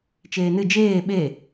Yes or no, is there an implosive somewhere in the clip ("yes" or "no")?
yes